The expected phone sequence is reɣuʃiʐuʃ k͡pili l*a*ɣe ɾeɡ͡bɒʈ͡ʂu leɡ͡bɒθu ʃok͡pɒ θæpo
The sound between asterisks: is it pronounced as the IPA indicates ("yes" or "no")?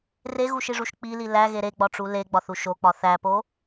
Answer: no